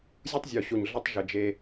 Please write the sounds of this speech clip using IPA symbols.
zʲ u˦ tˤ zʲ o˨ ɕ o˨ ɲ ɮ ə˦ tˤ ʒ ɘ˨ d͡ʒ e˦

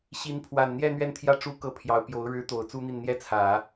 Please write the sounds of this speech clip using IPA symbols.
ɕ i˧˥ n pʰ w a˨˩ n n̪ j ɛ˥˧ n̪ ɥ ɛ˥˩ n t̪ʰ j ä˥ ʈ͡ʂ u˥˧ k ɤ˥˩ pʰ j ɑ˧˥ ʊ̯ p j o˧˥ ʊ̯ ɻ ɻ̩˧˥ t̪ o˨˩ ʊ̯ t͡s u˥ n̪ i˥˩ n n̪ j ɛ˥ t͡sʰ ä˨˩˦

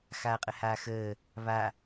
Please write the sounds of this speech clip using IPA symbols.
x aː qʼ ə h aː x əː | β a

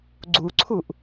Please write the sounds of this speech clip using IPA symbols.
ɡ͡ǀ u ǀʰ u ʔ

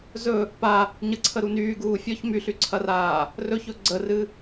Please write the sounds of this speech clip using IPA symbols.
z ɵ | p a | ɲ ə ǀʰ ə ɾ u n yː ɡ uː fʲ ɔ ç m y ɬ y ǀʰ ɐ r aː | r ɵ ç ɵ ɡ͡ǀ ə r ɨ

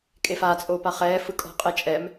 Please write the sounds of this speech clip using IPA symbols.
kʼ e f aː t͡sʼ oː p a χ ɛː f ɯ kʼ ɔ̤ qʼ ɛ t͡ʃʼ ɛ m

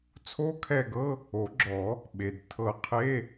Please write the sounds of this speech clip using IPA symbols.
t͡sʰ o˦˥ kʰ ɛ˦˨ ɡ ɤ˧˥˧ | o˨˩˦ ɡ͡ǁ ɔ˨˩˦ | ɓ e˩ d tʰ ɤ˨˩˦ qʰ e˧˥˧

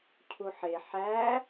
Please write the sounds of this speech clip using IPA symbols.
cʰ u ħ e ħ æ

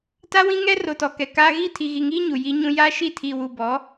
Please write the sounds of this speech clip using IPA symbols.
t a˦ w ĩ˦ ŋ ɛ˦ r o˨ t ɔ˨ k ɛ˨ k aː˦ ɣ i˦˨ tʰ i˨ ɣ i˨ ŋ iː˦ ɲ u˨ j i˦ ɲ ũ˦ j aː˦ ʃ i˦˨ tʰ i˨ w u˨ b ɔ˨˦

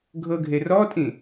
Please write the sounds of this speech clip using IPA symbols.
ɡʱ ɤ ɡʱ e r ɔ tʼ ĩ

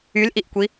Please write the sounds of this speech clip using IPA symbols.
y l ʔ i ʔ kʷ i

